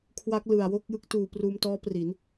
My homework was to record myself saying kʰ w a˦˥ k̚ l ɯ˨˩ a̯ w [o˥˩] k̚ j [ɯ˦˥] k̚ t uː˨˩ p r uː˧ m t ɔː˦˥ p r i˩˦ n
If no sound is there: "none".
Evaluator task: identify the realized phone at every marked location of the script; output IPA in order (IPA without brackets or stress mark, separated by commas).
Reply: o˥˩, ɯ˦˥